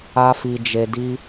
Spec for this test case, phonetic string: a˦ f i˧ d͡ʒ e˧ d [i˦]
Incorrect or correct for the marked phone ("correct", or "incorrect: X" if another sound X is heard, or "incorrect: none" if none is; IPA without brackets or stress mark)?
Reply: correct